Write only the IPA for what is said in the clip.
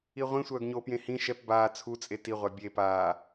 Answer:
i ʁʷ ĩ sʷ œː ɡ ɲ o p j ẽ h ĩ ʃ ɛ p b aː t͡sʰ u t͡sʼ e t i ʁʷ a bʲ e p aː

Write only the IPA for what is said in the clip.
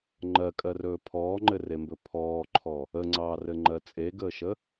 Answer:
ŋ͡ǃ ɜ kʼ ɜ r ɵː pʰ ɔː ŋ͡ǃ ɘ r e m b ɵ pʰ ɔː ǃʰ ɔ | ə ŋ͡ǀ ɑː r ɘ ŋ͡ǃ ɜ t͡sʼ e ɡ əː ʃ ə

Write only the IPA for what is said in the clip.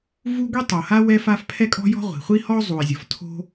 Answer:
v u˥ ɡʷ i˥ tˤ o˩ h a˥ w ɛ˥ f a˥ f pʰ ɛ˥ kʼ ɔ̤˥ j ɔ̤˥ ʁʷ i̤˩ χʷ i˥ h ɔ˥ o̯ zˤ u˩ e̯ zʲ ɔ˩ f tʰ o̤˥

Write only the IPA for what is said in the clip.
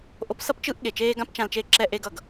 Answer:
ʔ o˦ p s ʌ˦ p t͡ʃ ɯ˦ ʔ ɠ e˨ t͡ʃ eː˦ ɡ ã˦ p t͡ʃ ã˧ l t͡ʃ e˦˨ ǁ ɛ˧ ʔ e˧ ɡ ʌ˨ ɡ

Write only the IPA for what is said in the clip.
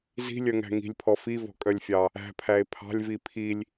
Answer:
z i̤ lʲ œ ŋ æ̤ ŋ i̤ lʲ pʰ ɔ f i v ɔ̤ kʼ œ lʲ fʲ ɑ | æ̤ pʰ æ e̯ pʰ ɑ̤ lʲ v i pʰ i lʲ

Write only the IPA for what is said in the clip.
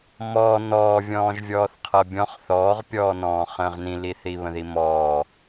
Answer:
m ɔː n ɔː vʲ ɔ̃ː ʒ vʲ ɔː θ qʰ ɤ bʲ ɔ̃ χ θ ɔː ʁ pʲ ɔː n ɔ̃ː χ ə̃ː ʁ n ĩ l i θ i β ə̃ ð i m ɔː

